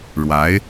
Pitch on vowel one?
rising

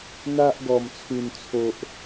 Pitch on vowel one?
high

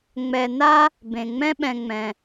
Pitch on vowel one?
low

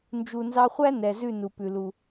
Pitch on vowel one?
low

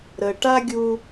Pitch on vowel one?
low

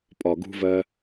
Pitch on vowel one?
low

